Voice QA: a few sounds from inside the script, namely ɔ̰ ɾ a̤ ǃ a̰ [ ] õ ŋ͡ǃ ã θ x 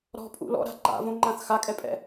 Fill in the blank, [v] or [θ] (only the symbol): v